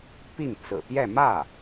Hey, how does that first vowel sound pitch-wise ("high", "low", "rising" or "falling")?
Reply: falling